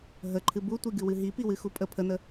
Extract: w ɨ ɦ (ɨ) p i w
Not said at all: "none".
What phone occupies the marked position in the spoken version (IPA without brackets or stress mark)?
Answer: i